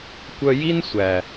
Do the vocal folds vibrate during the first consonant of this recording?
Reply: no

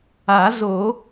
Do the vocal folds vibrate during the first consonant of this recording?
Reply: yes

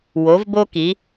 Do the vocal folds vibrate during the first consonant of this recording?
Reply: yes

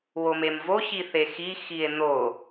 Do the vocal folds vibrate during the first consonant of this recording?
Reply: yes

